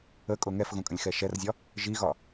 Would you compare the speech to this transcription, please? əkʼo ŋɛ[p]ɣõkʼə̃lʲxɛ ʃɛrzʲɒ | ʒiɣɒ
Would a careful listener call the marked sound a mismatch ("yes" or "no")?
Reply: yes